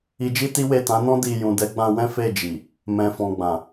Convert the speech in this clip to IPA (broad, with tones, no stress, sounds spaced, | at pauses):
i˧ d͡ʒ i˦ t i˦ w e˦˨ t ã˨˦ n ɔ̃˦ d i˧ j ũ˨ d ɛ˨˦ ɡ͡b ã˧ w ɛ̃˦ f e˦˨ d͡ʒ i˨ | m ɛ̃˨ f ɔ̃˨ ɡ͡b ã˨